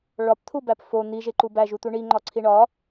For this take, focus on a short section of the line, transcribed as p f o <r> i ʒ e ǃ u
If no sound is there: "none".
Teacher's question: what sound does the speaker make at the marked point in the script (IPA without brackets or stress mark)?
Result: n̪